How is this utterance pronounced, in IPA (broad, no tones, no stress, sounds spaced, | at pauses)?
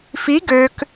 f i ɡ ø k